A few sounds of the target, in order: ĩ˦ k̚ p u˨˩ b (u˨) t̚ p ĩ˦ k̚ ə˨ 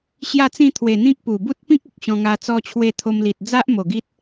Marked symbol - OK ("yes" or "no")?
no